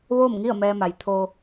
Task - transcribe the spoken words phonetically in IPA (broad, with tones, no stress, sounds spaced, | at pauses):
ʋ oː˥˨ m ŋ i˥˨ ə̯ m ɛː˧ m a˩ j t̪ʰ o˧